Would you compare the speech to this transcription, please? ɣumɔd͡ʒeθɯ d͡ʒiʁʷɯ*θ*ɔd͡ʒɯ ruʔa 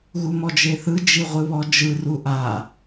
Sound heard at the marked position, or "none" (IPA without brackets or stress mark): β